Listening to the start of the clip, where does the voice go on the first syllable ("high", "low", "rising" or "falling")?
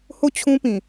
falling